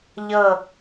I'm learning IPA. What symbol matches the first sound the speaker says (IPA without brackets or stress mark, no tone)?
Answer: ʎ